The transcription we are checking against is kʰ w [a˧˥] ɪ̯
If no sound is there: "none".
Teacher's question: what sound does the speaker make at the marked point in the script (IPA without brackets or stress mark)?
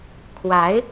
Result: a˧˥